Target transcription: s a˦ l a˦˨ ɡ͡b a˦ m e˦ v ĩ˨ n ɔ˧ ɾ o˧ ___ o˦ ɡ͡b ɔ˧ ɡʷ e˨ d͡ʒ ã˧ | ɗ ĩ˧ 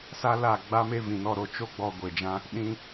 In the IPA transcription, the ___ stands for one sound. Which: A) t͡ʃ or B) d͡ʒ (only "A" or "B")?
A